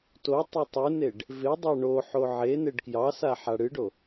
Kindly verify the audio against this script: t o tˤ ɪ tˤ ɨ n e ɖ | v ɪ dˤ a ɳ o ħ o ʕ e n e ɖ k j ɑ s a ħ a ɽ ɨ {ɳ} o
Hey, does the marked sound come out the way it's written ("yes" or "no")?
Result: no